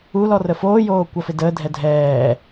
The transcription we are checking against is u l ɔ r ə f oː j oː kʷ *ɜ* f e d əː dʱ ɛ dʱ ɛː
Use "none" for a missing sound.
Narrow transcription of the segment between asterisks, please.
ɜ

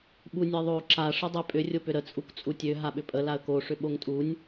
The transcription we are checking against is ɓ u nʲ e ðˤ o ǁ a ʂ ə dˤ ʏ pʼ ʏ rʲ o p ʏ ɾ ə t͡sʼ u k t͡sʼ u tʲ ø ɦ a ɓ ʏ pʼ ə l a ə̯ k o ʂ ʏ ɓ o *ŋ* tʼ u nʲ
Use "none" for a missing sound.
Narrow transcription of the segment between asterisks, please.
ŋ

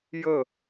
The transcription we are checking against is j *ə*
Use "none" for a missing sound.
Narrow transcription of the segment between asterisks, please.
ə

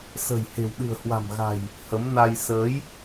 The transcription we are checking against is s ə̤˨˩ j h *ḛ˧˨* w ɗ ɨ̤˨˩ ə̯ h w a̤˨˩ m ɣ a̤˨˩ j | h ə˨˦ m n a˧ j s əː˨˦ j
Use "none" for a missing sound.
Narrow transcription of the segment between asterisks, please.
e̤˨˩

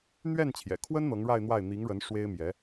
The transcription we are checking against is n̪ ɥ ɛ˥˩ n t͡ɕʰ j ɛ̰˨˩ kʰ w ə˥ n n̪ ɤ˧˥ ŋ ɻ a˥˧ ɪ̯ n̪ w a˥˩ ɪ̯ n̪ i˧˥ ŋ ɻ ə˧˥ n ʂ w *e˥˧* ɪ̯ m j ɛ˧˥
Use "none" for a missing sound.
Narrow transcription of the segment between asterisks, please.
e˥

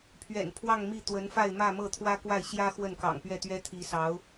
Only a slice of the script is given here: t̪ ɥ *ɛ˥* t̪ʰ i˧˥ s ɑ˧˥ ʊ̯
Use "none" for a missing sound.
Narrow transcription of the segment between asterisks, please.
ɛ˥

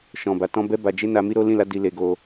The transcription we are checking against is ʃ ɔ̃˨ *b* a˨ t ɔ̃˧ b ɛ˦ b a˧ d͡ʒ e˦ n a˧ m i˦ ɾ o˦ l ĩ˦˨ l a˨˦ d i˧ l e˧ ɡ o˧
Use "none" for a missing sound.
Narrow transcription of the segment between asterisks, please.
b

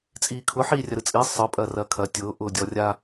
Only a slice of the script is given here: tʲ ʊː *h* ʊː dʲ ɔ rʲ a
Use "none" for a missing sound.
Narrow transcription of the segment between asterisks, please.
ʔ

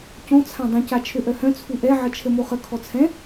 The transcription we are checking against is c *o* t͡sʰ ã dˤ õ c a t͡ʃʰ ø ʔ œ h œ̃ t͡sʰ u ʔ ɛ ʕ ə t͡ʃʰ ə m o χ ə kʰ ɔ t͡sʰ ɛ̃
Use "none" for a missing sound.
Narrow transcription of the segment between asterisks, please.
õ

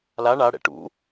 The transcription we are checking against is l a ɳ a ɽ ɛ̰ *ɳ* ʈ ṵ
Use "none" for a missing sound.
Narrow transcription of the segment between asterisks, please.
none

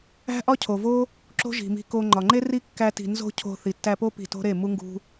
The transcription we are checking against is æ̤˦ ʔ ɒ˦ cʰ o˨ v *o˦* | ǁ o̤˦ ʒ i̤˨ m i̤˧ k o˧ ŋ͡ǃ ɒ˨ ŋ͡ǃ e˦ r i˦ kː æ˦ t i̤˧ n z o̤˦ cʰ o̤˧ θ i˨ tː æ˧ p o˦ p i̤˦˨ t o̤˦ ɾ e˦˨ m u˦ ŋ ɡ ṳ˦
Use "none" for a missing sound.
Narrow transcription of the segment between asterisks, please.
o˦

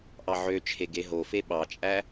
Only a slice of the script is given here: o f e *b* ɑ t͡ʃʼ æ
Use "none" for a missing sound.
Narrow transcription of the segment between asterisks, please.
ɓ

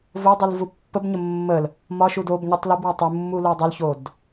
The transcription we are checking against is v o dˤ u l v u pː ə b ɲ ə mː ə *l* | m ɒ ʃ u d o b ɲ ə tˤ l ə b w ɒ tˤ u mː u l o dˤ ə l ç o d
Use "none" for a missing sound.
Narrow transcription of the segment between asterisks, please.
l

